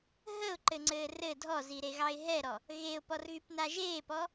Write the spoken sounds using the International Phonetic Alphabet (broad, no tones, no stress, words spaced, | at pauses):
ɦəʊ̯ǃɘŋ͡ǀɘː rɘ dʱɔziɾeɣɑɪ̯ ɦɛɾɔ | ɣeʊ̯pɔrɣypna ʒeːpɔ